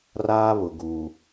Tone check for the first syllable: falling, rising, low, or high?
high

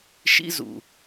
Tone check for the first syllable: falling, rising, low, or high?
high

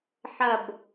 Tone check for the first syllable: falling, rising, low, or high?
low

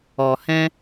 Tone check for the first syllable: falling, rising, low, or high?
low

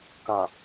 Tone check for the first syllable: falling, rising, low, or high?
low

